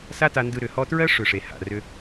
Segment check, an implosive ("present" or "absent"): absent